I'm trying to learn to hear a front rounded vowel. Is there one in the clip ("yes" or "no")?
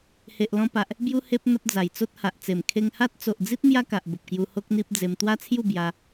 no